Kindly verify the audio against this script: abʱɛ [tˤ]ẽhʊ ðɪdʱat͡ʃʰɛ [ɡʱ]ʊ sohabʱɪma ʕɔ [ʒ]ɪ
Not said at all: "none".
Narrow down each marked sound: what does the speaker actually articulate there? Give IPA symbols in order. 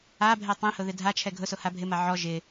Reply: tˤ, ɡʱ, ʒ

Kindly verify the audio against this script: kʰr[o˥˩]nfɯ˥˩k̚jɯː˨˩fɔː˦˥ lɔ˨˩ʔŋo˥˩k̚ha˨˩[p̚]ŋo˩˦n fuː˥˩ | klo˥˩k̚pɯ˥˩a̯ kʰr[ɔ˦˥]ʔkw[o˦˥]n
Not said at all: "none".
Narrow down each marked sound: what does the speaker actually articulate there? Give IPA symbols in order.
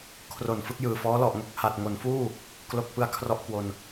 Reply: o˨˩, t̚, ɔ˥˩, o˧

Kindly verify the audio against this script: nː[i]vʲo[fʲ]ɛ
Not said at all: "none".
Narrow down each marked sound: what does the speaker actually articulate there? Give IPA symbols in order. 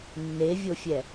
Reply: e, fʲ

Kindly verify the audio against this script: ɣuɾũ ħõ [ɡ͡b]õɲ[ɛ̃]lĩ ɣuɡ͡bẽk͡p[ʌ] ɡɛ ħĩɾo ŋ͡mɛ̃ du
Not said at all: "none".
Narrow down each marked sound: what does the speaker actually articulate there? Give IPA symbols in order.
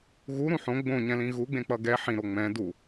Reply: ɡ͡b, ɛ̃, ʌ

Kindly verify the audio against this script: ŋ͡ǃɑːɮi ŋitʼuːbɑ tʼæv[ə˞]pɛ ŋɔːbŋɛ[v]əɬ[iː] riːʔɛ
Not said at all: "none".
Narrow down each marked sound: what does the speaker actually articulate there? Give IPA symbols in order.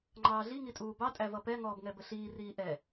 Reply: ʌ, b, iː

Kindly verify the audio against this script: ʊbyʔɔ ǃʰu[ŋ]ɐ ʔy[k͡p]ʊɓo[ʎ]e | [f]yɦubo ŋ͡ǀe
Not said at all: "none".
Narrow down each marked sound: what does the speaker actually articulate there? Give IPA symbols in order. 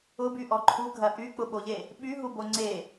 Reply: ɡʱ, k͡p, ʎ, ɓ

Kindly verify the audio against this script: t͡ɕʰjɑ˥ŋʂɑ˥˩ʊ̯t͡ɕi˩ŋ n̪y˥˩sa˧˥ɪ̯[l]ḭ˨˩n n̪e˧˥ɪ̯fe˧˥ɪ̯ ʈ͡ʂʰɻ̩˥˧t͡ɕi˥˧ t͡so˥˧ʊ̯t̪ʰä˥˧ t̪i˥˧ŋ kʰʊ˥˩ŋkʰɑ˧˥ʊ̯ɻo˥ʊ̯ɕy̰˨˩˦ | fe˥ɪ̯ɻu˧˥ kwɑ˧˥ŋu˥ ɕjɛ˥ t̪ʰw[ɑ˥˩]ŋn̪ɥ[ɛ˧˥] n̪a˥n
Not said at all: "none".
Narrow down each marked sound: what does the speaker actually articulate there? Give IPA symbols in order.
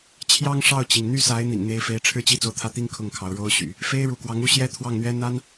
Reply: n̪, ɑ˥˩, ɛ˥

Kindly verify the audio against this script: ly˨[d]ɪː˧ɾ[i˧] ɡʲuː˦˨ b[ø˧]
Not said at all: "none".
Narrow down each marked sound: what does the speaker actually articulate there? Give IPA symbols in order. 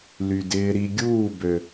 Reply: d, i˧, ø˨

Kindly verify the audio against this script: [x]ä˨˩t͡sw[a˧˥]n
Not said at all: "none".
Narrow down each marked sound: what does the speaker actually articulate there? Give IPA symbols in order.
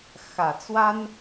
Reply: x, a˥

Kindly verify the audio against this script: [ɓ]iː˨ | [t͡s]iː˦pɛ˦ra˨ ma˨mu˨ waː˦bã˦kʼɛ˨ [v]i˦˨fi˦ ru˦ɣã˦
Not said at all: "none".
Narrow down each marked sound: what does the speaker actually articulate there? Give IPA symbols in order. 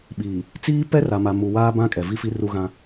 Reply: ɓ, t͡s, v

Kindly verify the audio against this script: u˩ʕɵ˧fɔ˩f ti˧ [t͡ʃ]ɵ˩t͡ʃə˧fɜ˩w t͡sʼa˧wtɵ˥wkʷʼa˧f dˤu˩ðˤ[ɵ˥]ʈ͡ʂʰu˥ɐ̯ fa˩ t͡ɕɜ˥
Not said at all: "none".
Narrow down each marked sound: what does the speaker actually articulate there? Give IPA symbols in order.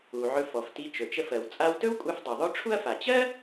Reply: t͡ʃ, ɵ˥

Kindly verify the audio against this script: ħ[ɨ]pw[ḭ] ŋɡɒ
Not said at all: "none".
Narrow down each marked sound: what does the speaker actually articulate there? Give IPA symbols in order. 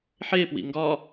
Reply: e, ḭ

